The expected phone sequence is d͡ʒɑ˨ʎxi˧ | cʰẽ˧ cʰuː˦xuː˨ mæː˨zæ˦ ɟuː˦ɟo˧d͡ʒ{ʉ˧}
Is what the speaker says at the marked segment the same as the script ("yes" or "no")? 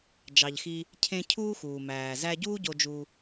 no